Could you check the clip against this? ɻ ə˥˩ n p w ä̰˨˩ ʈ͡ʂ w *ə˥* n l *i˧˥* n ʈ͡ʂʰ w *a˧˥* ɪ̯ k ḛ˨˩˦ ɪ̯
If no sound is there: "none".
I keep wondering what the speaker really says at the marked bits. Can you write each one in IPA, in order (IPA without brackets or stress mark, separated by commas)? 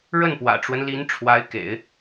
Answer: ə˦, i˧˥, a˧˥